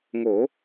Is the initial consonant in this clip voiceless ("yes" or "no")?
no